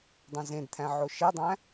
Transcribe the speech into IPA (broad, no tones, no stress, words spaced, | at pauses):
dˤõzẽdt̪ʰæ̃ ʕoʃedˤæ̃